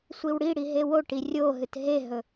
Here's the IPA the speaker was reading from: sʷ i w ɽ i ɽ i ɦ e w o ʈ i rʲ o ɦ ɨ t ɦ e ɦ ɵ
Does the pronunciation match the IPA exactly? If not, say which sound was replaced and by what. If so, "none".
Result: none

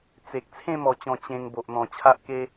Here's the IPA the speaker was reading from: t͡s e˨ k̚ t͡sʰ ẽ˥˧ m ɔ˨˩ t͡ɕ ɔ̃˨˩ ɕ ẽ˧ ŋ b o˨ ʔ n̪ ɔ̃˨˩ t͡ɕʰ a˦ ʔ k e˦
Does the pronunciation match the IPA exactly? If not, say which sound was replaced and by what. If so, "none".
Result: ɕ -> t͡ɕ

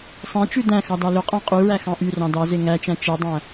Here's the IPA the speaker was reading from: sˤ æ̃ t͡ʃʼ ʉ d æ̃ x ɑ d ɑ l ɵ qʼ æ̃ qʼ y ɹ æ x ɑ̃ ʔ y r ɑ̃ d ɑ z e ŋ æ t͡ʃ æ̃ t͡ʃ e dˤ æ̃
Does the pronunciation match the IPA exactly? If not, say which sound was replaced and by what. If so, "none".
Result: t͡ʃʼ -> t͡ʃ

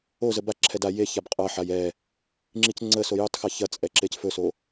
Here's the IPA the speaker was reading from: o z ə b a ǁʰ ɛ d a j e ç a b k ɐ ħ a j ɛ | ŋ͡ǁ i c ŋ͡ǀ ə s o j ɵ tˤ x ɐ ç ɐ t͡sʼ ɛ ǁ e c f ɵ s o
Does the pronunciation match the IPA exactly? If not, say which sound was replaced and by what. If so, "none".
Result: k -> qʼ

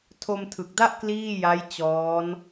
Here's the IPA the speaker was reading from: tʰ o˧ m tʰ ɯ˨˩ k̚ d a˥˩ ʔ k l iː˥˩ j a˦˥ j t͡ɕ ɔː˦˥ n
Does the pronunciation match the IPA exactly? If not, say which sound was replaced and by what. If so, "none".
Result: none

